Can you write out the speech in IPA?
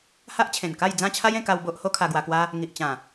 ha˦ʔt͡ɕʰẽ˨˩nka˥˧j d͡zã˥˧t͡ɕʰa˦jẽ˧ka˧w bo˦ʔ ho˦ kʰa˧ɡwa˧kwa˦ | ŋi˨ʔ t͡ɕã˨˩

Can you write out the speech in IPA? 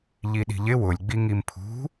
ʎiɗi̤ʎɪ wʊlʲ ɡ͡biŋimpʰṳ

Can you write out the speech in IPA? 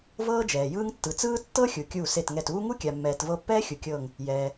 vɤː˥d͡ʒɛː˩jɯː˥ŋ tːɯ˩t͡sɯː˥ tːɤ˥ xʲu˩kʲuː˧˩ se˧˩tŋɛ˧˩tuː˥ ŋu˥kʲa˩mːɛː˩tvɤ˧˩ pːɛː˥xʲu˩ kʲɤː˧˩ŋ | jɛː˩

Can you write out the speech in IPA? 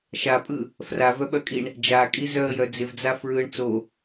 ʃapʼɯ | fravœɓœkʼiɳ | d͡ʒakʼi zœə̯jœ d͡zɪvd͡za fɹɯɳ t͡so

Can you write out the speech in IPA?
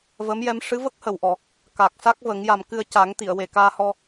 və˧˥mjɛ˧˥m ʂɨ˧˥və˦˥k̚ hə˨˩˨wʔɔ˨˩˨ | ka˨˩k̚sa˦˥k̚və˨˩˦ŋ ja˨˩mkɨ˧ə̯ca˨˩˦ŋt̪i˨˩˨ə̯ we˨˩kaː˧hɔ˧

